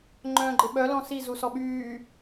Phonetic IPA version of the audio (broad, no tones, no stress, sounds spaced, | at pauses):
ŋ͡ǃ œ̃ː ɡ͡ǃ ɪ ɓ œ l ɔ̃ s i z u s ɔ ɓ yː